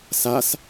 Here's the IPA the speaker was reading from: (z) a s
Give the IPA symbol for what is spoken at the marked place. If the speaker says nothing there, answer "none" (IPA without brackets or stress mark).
s